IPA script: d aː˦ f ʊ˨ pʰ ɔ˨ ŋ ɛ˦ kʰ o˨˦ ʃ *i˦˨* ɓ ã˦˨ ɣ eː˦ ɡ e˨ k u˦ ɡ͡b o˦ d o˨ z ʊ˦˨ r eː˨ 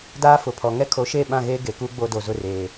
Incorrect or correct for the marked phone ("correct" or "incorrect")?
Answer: incorrect